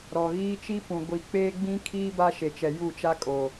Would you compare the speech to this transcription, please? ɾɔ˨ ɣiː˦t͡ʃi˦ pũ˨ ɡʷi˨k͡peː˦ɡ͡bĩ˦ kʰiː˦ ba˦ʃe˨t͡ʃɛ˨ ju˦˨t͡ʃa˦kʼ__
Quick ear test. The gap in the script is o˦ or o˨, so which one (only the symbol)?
o˨